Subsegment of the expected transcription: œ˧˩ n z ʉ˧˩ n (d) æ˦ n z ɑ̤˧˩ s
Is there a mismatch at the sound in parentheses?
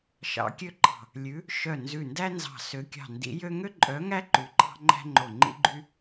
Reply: no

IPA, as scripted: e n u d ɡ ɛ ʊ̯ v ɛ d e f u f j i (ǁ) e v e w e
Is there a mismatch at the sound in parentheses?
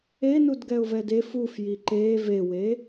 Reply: yes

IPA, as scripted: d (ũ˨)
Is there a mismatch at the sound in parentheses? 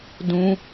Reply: yes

